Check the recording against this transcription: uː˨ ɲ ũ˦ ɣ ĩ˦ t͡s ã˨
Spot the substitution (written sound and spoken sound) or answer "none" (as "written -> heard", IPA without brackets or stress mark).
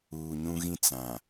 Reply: none